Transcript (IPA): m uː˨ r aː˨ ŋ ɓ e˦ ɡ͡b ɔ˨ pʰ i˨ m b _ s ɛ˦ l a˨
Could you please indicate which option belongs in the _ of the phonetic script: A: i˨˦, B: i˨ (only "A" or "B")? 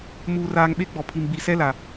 B